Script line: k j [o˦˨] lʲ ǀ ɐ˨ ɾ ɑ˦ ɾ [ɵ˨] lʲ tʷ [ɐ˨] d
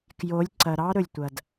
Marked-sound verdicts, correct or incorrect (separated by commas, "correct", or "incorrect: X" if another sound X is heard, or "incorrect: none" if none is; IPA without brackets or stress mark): incorrect: o˨˦, correct, correct